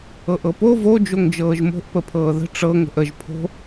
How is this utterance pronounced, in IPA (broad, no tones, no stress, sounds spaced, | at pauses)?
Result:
ɤ ʔ ɤ p o v o d͡ʒ o ŋ d͡ʒ ɤː ʒ m o̤ ʔ p ə pʰ ɤː ð ə̤ ʈ͡ʂ ɤ ŋ ə̤ ʔ ə ʒ pʰ o̤